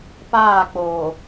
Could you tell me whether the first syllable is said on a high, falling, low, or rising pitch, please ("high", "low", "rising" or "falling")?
falling